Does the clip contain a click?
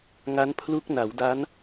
no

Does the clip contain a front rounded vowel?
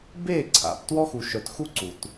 yes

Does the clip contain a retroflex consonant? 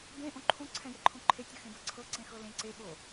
no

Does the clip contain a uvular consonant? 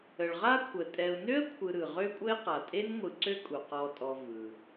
yes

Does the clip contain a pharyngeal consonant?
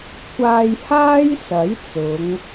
no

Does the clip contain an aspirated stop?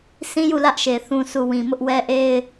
no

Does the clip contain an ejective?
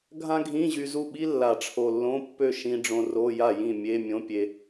no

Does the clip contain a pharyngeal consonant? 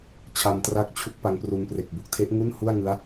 no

